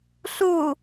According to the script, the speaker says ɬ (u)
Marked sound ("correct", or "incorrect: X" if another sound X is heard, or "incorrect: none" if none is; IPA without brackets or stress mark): correct